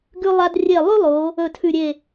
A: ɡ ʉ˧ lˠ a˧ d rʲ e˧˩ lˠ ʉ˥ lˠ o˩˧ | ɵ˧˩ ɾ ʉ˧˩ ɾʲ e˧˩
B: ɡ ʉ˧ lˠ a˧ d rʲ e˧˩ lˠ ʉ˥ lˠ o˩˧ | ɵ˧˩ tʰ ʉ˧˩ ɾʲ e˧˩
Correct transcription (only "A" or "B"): B